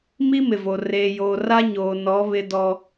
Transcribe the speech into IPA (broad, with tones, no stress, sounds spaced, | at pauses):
m i˦ m ɪ˨ v o˨ r eː˨ j oː˨ r a˦ ɲ oː˨ n ɔ˨˦ β ɪ˦ d ɔ˦